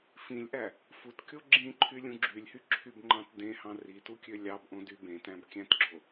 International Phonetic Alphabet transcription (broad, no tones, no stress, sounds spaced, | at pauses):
f ĩ lʲ ʔ æ | f u t kʲ o ɡ͡ǁ ĩ ǃʰ y lʲ ũ ɡ͡ǁ y lʲ h y ǁʰ y b ŋ͡ǃ ɑ̃ t d ẽ h ɑ̃ r i t u kʲ ø lʲ ɑ b ʔ õ d y b ẽ t æ̃ b kʲ æ̃ t ɡ͡ǁ o